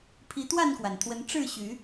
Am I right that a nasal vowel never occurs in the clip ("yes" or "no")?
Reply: yes